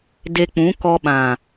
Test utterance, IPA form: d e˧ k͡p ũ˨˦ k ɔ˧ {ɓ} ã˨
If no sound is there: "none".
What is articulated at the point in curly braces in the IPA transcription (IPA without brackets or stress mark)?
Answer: ɓ